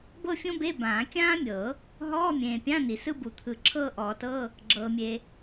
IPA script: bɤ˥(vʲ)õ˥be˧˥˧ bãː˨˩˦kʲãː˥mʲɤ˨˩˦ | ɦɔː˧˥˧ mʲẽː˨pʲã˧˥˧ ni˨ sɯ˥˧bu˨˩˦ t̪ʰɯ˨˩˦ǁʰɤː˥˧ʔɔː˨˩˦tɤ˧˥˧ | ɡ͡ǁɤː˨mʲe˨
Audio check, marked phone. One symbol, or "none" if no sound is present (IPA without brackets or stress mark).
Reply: fʲ